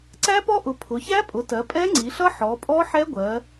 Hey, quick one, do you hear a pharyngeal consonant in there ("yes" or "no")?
yes